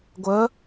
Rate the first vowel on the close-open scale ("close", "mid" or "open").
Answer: mid